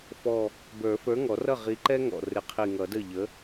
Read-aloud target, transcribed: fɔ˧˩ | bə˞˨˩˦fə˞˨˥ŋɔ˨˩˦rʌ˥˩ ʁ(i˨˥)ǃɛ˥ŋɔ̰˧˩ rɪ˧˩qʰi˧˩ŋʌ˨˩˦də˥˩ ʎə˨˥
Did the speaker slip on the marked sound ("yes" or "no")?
no